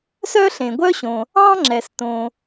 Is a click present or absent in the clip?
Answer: present